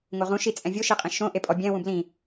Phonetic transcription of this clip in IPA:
ŋ o ʁ ũ ʃ i t͡sʼ ɛ̃ vʲ o ʃ i qʼ ĩ ʃ õ ʔ e pʼ ɔ bʲ ɛ̃ w ũ b l ĩ

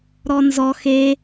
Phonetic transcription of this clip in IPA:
ɾ ɔ n z ɔ x e

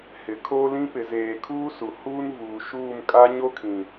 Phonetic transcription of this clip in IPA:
h ɪ˨ kʰ oː˦ l ĩ˦ p ɪ˨ z eː˨ kʰ uː˦ s u˨ h uː˦ n v uː˨ ʃ uː˦˨ m kʼ a˦ ɲ o˦ kʰ ĩ˨

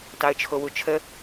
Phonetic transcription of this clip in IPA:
t ɑ ə̯ t͡ʃʰ o w u t͡ʃʰ ə

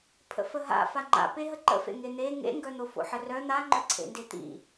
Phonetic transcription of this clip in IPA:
pʰ ə̰ f ə ɦ a̰ f a ŋ͡ǃ a̰ p e ɦ ə ǃ ə̰ f ḛ ŋ e n̪ e ŋ ḛ ŋ ɡ œ n̪ o f o̰ ħ ə r œ n̪ a ŋ͡ǃ œ ǀʰ ḛ n d e t̪ ḭ

